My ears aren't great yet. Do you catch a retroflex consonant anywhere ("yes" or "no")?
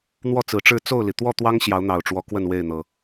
yes